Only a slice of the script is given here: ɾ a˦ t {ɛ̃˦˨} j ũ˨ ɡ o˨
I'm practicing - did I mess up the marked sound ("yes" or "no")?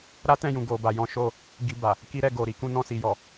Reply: no